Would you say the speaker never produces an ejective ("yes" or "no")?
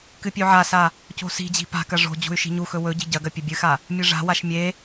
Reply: yes